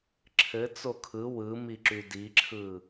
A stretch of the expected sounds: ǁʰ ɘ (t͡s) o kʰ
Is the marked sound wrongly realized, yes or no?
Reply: no